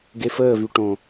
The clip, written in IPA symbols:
ɡ e f əː v y ʈ õ

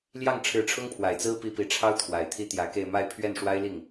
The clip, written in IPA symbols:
l j ɑ˥˩ ŋ ʈ͡ʂʰ ɻ̩˧˥ ʈ͡ʂʰ ʊ˥ ŋ pʰ w a˨˩ ɪ̯ t͡s ɹ̩˥ p i˧˥ p i˨˩ ʈ͡ʂʰ ɑ˥ ʊ̯ t̪ʰ w a˨˩ ɪ̯ t̪ʰ i˥ t̪ j ä˧˥ k e˥˧ ɪ̯ m a˥˧ ɪ̯ pʰ ɥ ɛ˥˩ n ʂ w a˥ ɪ̯ l i˥˩ ŋ

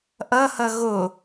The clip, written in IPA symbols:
ʔ ʌ h ʌ ɣ o

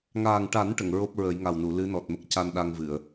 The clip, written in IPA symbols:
ŋ aː˨˩ ŋ ʈ a˨˩˦ n ʈ ə˨˩˨ ŋ ɹ o˦˥ p̚ ɹ ə˨˩˦ j ŋ a˨˩ w n u˨˩˨ l ɨ˧˥ n ɔ˨˩ t̚ m ə˦˥ k̚ c a˧ n ɗ a˧ ŋ v ɨ˨˩˨ ə̯

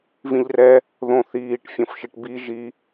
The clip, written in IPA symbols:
v ĩ ʎ r ɛ | ð õ θ iː ʈ fʲ õ f ʃ i ʈ b i ʒ i

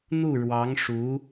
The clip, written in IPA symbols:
n̪ u˥˩ ɻ w ɑ˧˥ ŋ ʂ u˧˥

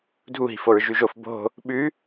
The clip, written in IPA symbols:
dʱ u ɦ i̤ f o ɹ ʒ ʉ ʒ o f b o̤ | ɓ ʉ

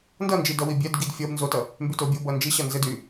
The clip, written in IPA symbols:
n d ʌ n d͡ʒ i d ʌ w i bʲ ɛ d ɡ i d fʲ ʌ b n z o t ʌ | m b y t o bʲ o b ʌ n d͡ʒ i ɕ ʌ n z ɘ d y

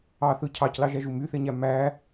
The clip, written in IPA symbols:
ɑ θ ɯ cʰ ɑ c l ɑ ʒ æ ʒ u m y θ e ɲ æ m æ

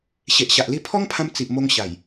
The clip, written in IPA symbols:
ɕ e˨ ʔ ɕ a˨ ʔ l i˧ pʰ ɔ˦ ŋ pʰ ã˧ m t͡s i˨ ʔ m o˧ ŋ ɕ a˨˩ j

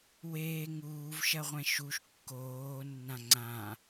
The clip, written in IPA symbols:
w eː ŋ uː v ʃ ɐ ʁʷ ɛ̃ ʃ u ʃ kː oː nː ã ŋ͡ǀ ã

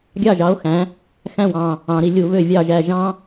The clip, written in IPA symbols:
ɡʲ ɑ˥˩ ʒ ɑ˩˥ o̯ x æ̃˩˥ | x æ̃˥˩ w ɑ̃˧˩ | ɑ̃˩˧ ɾ i˧˩ lʲ u˧˩˧ β ø˧˩ vʲ ɑ˥˩ ʒ æ˥˩ ʒ ɑ̃˥

